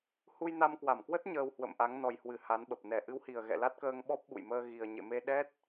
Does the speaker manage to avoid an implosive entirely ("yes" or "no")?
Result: no